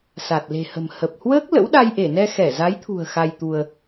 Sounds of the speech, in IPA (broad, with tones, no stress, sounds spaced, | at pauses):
s a˨˩ t̚ l e̤˨˩ h ə̤˨˩ m h ə˨˩ p̚ h w əː˦˥ k̚ l ə̰˧˥ w ɗ a˧ j ʔ e˧˩ n ɛ˧ x ɛ˧˩ z a˨˦ j t̪ʰ ṳ˨˩ ə̯ x a˧ j t̪ u˧ ə̯